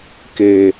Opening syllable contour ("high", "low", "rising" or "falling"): low